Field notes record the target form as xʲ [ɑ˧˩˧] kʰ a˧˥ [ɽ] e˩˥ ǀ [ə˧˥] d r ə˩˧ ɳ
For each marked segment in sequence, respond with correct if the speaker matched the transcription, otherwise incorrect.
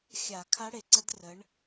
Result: incorrect, correct, correct

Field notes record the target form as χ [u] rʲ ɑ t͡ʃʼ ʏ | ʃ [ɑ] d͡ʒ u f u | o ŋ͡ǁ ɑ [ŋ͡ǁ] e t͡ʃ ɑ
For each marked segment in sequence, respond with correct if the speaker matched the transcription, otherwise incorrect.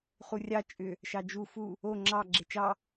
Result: correct, correct, incorrect

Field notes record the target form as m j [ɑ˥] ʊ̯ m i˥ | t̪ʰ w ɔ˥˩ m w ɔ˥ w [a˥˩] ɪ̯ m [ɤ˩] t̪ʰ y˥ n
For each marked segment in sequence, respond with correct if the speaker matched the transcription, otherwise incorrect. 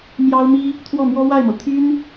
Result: correct, correct, correct

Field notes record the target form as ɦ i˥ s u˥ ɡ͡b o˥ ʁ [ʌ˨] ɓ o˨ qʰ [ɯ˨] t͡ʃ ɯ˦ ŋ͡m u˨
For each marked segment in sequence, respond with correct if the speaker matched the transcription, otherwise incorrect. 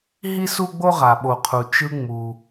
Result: incorrect, incorrect

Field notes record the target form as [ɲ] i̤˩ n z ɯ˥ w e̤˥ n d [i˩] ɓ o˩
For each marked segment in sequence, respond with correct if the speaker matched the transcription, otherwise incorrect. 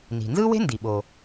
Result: incorrect, correct

